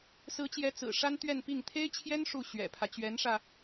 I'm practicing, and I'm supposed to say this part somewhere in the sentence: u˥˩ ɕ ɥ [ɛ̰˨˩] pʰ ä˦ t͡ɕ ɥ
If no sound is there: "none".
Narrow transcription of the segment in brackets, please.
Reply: ɛ̰˨˩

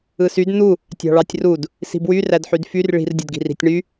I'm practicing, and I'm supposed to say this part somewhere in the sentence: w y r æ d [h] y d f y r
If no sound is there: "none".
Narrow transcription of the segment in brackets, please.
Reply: ħ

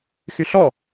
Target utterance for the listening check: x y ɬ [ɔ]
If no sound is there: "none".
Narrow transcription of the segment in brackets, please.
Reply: ɔ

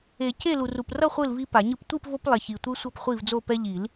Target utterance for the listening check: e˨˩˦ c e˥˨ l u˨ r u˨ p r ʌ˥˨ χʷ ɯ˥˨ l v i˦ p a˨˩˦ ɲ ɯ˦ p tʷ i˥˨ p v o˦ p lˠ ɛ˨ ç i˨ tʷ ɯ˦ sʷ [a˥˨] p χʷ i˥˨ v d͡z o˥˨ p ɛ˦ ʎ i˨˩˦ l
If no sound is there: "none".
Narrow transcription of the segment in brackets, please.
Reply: ʌ˥˨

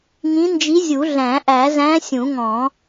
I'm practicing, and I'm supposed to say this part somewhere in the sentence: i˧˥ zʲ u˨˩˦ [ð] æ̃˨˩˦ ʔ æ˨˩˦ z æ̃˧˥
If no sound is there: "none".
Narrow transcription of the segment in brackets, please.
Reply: ɮ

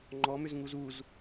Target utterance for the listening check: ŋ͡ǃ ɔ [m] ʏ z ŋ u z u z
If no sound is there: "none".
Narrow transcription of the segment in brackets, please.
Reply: m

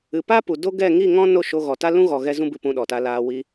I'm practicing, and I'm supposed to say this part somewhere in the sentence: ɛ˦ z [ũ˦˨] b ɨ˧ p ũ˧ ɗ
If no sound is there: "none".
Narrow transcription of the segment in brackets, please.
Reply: ũ˦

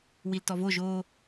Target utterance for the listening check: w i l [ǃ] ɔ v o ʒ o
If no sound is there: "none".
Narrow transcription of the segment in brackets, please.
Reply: t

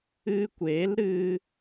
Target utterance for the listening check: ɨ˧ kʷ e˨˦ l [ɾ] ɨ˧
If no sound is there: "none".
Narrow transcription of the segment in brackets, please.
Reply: ɾ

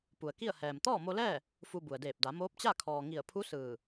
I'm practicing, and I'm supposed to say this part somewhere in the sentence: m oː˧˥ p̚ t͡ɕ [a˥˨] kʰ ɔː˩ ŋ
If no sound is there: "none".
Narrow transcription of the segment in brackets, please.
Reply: a˥˨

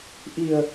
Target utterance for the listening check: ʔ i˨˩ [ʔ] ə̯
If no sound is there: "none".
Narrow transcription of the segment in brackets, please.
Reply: none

